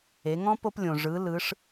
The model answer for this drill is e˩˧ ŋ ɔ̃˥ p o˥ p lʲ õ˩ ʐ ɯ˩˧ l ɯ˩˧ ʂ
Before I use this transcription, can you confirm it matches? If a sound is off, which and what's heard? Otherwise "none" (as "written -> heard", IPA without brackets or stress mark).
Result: none